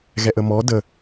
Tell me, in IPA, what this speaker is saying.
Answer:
ɣɛʔəmɔ də

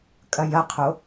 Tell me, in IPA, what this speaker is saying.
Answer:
kʼɐjɐqʰo

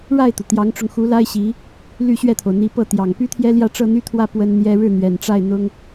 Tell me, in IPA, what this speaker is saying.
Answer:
ɻa˥˩ɪ̯t̪u˩ t̪jɑ˧˥ŋʈ͡ʂʊ˧ŋxu˧˥la˥ɪ̯ ɕi˧˥ | ly˥˧ɕɥɛ˥˩t̪ʰo˩ʊ̯ n̪i˧˥pɤ˥˩t̪jɑ˨˩ŋ py˥t̪ʰjɛ˥ljä˥˧ ʈ͡ʂɤ˥˧n̪y˥˧t̪ʰwä˥˩ pwə˥nn̪jɛ˥ ɻɻ̩˥˩n̪ɥɛ˨˩nʈ͡ʂa˥˩ɪ̯ n̪ʊ˥ŋ

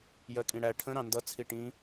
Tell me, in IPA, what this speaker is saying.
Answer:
jɜkʼĩɽæ ʈʰə̃ ɾɑ̃ndʌ t͡sʰiʈĩ

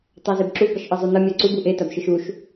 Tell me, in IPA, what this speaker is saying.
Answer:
tˤazebǁu bʌʃʔɯzˤunʌ mʲaǀub uʔe tabʃɯʃuʃ

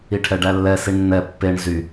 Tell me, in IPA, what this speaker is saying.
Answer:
iʈʰɛɖælːɛ siɳnːɛ pːeɳ zy

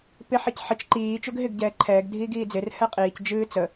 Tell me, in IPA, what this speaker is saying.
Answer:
pɪ ħicħɪt͡ʃ ǃiː t͡ʃɵɡɦɪɡ ɟɛːǃʰɛːɡ dʱiːɡiːd͡zɪr hɛqʼiːc d͡ʒɨːt͡sə

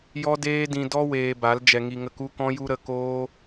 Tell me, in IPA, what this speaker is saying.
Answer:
jɔ˦deː˦dĩ˧dɔ˦ weː˧ba˨˦l d͡ʒɛ˧ŋi˧ŋə˦˨k u˦kɔ̃˦ju˦ ɾə˧koː˦

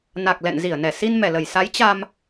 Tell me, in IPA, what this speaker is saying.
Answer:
na˨˩k̚lɛ̰˧˨n zi˧˩ə̯nɛ˧˩ si˧nmɛ˧˩lə˧˩j sa˨˦jt͡ɕa˧m

